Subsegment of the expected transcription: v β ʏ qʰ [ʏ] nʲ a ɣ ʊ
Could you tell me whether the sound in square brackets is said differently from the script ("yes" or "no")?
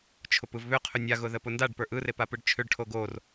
no